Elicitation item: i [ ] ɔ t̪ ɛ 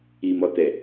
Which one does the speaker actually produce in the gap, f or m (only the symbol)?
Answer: m